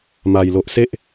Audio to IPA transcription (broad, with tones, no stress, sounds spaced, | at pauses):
m a˨˩ j l o˨ ʔ s e˦ ʔ